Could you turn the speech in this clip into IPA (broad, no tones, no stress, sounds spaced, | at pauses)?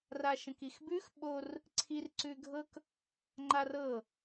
r a ʃ ə̃ k i x b ʉ x ɓ o r | ǀʰ i r ǀ ʉ ɡʱ ɤ k | ŋ͡ǃ a r ɤ